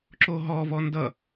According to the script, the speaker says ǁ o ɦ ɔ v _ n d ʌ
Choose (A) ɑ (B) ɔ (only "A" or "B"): B